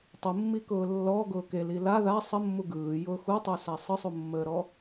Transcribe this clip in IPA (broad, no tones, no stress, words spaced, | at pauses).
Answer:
tˤumːikʊː lːɔɡʊː keli la ða sˤəmːu ɡɯːjʊː xutˤusa sˤɯsˤumːəːɾɔ